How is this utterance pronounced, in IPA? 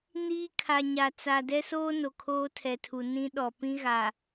niː˦ kʰa˨ɲa˨ t͡sa˨dɛ˦soː˦ no˨kʰoː˦tʰɛ˨tʰu˨ nĩ˦ ɗɔ˨ pĩ˦ɣa˨

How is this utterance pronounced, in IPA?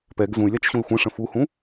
pɛɡ zũy̯lʲat͡ʃɕũi̯ xʷẽʂə̃ fuhũ

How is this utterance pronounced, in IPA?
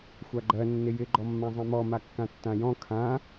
xʷaɡ͡ǃɜ nːɪjɪ ɡ͡ǃɔmːãzˤɛ̃mɔ makːãtːãjɔ̃ kʰã

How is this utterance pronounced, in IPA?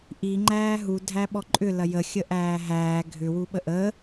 ʔi ŋ͡ǃæːɦu dʱæɓɔǃʼʏ lɐjə xʲəʔæːɦæː ɡʱʏ wuɓəʔəː

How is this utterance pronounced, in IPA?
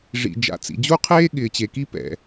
ʐḭ˩ d͡ʒa̰˩t͡sḭ˩d͡ʑu˥qʰeː˥ ɠɪː˩t͡ɕe˩ki˥ pɛ̰˩

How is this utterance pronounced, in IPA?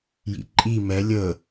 jḭǃʼi mɛ lʲə

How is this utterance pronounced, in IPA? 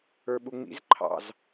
ə˞ɓuŋ͡mḭz ǃʰɑ̰z

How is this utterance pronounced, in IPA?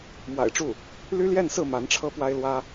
mwa̰˨˩ɪ̯ʈ͡ʂu˥˩ | ly˥ljɛ˥˧nsɹ̩˥˩ ma˧˥nʈ͡ʂʰɤ˥pwa˥ɪ̯lwä˥

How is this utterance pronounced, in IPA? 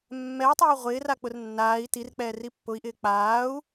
mːɛu̯tˤeː ʁʷɪːrak͡pʊr nːaːi̯ tirk͡pɛːri pːʊi̯ʔɪː k͡paːu̯

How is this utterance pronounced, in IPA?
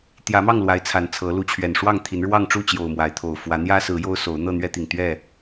t̪jä˨˦mɑ˥˨ŋ lwa˨˦ɪ̯t͡sʰa˨˩n t͡sʰɤ˨˦ lu˨˦t͡ɕʰɥɛ˨˩n ʂwɑ˥˨ŋt̪ʰi˨˦n ɻwɑ˥˨ŋʈ͡ʂu˥˨t͡ɕjo˨˩ʊ̯ mwa˨˦ɪ̯ t̪ʰo˨˩ʊ̯ fwä˨˦n̪jä˦sɹ̩˨˦ jo˦ʊ̯so˨˦ʊ̯ n̪ɤ˥˨n̪ɥɛ˦t̪i˨˩ŋ t̪ɥɛ˥˨

